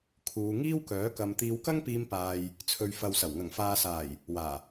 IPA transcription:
kʰuː˨˧ŋiː˥wkœː˨˥ kɐ˨m t̪iː˨˧wkɐ˥ŋpiː˧mpaː˨j | t͡sʰɵ˨ɥfɐ˨wsɐ˨˩w ŋɐ˨˩ŋfaː˨saː˨˩j | waː˨˩

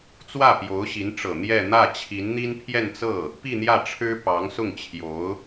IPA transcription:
t͡swä˥˩pjo˧˥ʊ̯ɕi˧˥n ʈ͡ʂɤ˨˩ n̪jɛ˥˧ n̪ä˥˩t͡ɕʰi˧˥nn̪i˥n pʰjɛ˥˧nt͡sɤ˥˩ | pi˥˧n̪jä˥˩ʈ͡ʂʰɻ̩˥ pɑ˧˥ŋsʊ˥˩ŋ t͡ɕʰjo˧˥ʊ̯

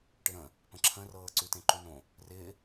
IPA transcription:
ʈɪɾə̃ | pə̃ǁʰə̃rɤː ǀʉtẽǃʉnõ | rɪː

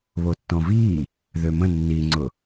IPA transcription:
βotːɔ̃viː | ðømə̃ nːiŋ͡ǀʊ

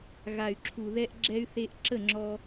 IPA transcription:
ɣa˨y̯ ǁʰu˨ ðɛ˧ʔ ɡ͡ǁɛ˧y̯θe˧ʔ ǁə˦˨ŋ͡ǁɔ˧

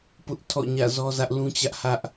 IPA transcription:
pʊ˦ʔ tʰɔ̰˦˨ɲä̰˦˨zɔ˦zä˦ʔ lũ˦t͡ɕä˦ʔ hä˦ʔ

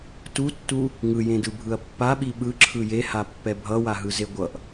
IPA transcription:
tutːu | ŋɯjẽdɯbʱɯɐ̯ pːaɓi ɓɯǁʰɯ jehapːɛ bʱʌwaɦɯze ɡʷʌʔ

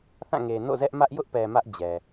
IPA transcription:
θã˦˨ŋe˨ no̰˦˨zɛ˦ʔmä˦ʔ jʊ˦ʔpɛ˨ mä˦ʔd͡ʑɛ˨

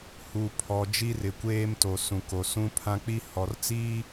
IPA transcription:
hu˨pʰɔ˨ d͡ʒi˦rɪ˨kʷeː˦mto˨ sũ˨ko˨ sũ˦ pʰã˦k͡pi˦ hɔ˨rt͡siː˦

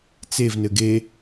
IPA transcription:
t͡sevnɘ ɡe

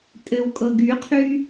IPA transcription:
tʼɘwkʼɤɡ yqʰy

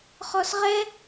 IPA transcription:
χɔsʁɛ

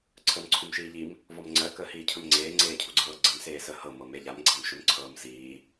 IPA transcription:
ǀʰəːmǀʰumʃiːʎim | vɔmŋ͡ǀɜ kəːhiːcʰɵmŋ͡ǀeː ŋ͡ǀeːcʰuɡ͡ǀɤːɡ͡ǀəm seːsəːhɤ mɤmeʎam ɡ͡ǀamʃɵmǀʰɤːmsiː

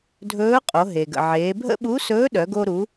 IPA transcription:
dʱɵː˧˥qʼo˩˧ ɦe˩ɡə̰˩ ʕeː˩˧bʱə̰˥ ɓu˧˥sɵː˧˥ɗœ˩˧ɡo˧ ɾu˩˧

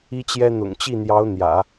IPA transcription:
i˥t͡ɕjɛ˥ n̪ʊ̰˨˩ŋt͡ɕi˥˩n̪jɑ˧˥ʊ̯ n̪jä̰˨˩˦

